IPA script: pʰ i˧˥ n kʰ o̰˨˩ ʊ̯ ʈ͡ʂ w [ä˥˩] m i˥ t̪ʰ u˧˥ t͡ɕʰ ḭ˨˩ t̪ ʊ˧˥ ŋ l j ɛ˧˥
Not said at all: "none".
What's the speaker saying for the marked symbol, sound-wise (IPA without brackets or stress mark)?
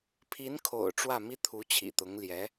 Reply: ä˥˩